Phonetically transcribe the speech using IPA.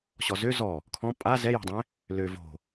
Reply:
ɕɔzø zɔ | kʰɔ̃ pʼa zɛjɔ̤dˤɛ̃ | lø vo̤

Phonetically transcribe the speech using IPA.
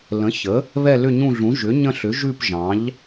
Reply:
lə̃˩˥ çə˩˥ | βɛ˦˨lʏ˦˨ɲũ˦˨ɮũ˩˥ ʒʏ˩˥ɲə̃˦˨ɬʏ˩˥ ʒʉ˦˨p ʒɑ̃˩˥ʎ

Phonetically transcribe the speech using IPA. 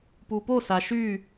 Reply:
pupo saʃy

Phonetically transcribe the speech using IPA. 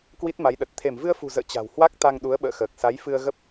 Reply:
kwi˦˥t̚ma˨˦jɗə˨˩t̚ t̪ʰe˧˩mvɨ˧ə̯fṳ˨˩zə̰ː˧˨ t͡ɕa̤˨˩whwa˦˥k̚ t̪a˧ŋɗu˨˦ə̯ɓə̰ː˧˨xəː˨˩k̚ sa˨˦jfɨ˧ə̯ɣə˦˥p̚

